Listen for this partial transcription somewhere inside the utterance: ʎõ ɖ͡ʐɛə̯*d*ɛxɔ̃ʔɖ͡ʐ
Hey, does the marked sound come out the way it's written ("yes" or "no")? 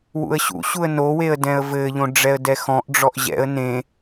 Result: yes